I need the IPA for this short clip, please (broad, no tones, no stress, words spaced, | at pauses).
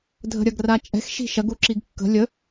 dʱə̤ɾʲɐɡrat͡ʃʼɛ̤x ʃi̤ʃɐɡuǁiɡ kːə̤ lʲə